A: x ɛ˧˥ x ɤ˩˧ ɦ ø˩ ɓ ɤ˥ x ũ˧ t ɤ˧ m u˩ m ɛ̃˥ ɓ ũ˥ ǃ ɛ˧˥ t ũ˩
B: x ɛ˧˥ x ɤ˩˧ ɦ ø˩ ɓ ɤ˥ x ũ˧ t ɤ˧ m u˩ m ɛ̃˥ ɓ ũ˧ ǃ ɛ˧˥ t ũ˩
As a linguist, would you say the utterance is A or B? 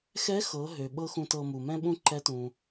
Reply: A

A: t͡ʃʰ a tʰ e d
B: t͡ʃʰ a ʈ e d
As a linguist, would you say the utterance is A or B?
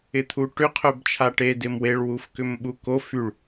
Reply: B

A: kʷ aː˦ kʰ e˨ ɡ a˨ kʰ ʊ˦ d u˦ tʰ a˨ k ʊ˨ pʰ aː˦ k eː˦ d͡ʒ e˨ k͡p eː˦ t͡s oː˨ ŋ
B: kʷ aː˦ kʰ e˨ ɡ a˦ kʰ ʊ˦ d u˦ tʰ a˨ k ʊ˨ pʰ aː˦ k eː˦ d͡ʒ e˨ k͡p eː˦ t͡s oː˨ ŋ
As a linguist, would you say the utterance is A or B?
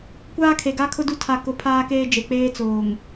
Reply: B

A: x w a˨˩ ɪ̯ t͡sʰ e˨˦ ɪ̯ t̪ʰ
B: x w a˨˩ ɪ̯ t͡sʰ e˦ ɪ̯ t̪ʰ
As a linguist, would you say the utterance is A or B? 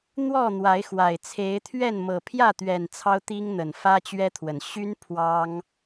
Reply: A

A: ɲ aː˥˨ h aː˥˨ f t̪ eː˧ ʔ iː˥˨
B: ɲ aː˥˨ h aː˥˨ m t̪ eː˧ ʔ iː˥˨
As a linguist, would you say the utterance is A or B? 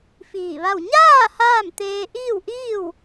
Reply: B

